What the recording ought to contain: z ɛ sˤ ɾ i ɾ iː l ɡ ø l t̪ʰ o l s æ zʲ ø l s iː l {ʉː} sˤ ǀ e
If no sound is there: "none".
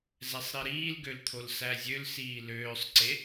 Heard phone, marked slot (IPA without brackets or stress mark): øː